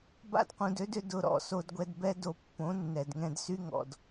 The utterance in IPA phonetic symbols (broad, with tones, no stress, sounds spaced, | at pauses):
b a̰˧ d q ũ˨ d ø˧ d ʏ˧ d ʊ˨ ɾ ɔ̰˨ s o˧ d ɡʷ ɛ˧ d b ɛ˦ d o˧ pː õ˨˦ nː ɛ˨ d ŋ ɛ̃˧ d s y˦ ŋ ɔ̰˨ d